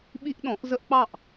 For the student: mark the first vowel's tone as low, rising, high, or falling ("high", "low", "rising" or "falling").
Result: high